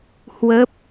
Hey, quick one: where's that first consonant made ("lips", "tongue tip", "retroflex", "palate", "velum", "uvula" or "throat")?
throat